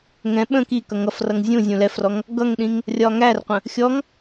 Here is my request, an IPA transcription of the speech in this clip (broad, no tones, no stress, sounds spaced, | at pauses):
ŋ ɛ̃ ɓ ə̃ k i k ʌ ŋ ʌ f r ʌ ŋ zʲ ũ zʲ ũ l ɛ f r ɔ ŋ | ɡ ʌ ŋ ɗ ĩ ŋ | rʲ ɒ ŋ æ r qʷ ə̃ | xʲ ɔ ŋ